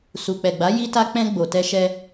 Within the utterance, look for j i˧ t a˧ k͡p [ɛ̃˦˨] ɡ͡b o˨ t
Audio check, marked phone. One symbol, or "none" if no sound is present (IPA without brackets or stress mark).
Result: ɛ̃˧